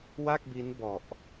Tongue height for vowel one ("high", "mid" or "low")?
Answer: low